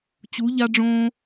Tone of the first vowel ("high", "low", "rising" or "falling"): rising